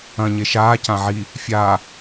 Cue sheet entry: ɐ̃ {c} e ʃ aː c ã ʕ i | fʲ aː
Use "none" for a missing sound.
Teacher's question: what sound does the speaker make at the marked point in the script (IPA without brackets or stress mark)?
ɲ